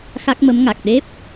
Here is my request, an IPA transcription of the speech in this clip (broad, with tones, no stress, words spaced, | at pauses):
xa˦˥k̚mə˧˥mŋa˨˩k̚ ɗe˦˥p̚